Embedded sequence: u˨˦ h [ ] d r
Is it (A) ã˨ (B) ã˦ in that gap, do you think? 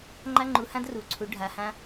B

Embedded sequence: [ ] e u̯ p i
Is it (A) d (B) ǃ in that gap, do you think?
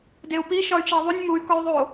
A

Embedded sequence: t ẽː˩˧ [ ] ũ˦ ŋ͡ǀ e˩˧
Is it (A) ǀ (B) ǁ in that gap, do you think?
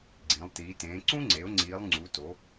A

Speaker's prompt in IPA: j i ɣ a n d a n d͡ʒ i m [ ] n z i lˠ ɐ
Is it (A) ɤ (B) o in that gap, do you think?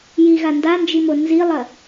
B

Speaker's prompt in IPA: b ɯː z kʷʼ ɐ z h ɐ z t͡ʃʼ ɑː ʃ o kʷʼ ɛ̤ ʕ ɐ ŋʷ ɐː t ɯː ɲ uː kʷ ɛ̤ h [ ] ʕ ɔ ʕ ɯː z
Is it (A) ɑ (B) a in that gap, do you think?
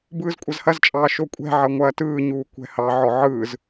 A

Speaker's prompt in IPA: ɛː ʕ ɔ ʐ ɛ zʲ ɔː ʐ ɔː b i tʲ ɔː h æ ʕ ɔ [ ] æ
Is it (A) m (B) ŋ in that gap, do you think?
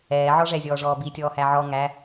B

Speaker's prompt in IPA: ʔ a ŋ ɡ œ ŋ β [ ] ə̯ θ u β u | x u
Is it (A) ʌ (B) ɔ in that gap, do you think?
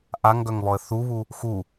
B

